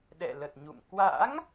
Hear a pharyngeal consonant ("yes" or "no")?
no